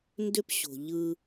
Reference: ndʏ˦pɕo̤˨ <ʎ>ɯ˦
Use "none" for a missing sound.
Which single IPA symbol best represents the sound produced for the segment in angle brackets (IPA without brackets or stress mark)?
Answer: ʎ